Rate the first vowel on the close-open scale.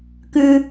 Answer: close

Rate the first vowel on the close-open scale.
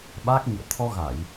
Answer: open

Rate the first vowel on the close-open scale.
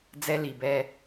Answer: mid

